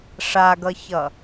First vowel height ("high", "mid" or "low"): low